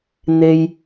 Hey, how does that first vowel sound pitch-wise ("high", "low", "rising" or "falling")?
low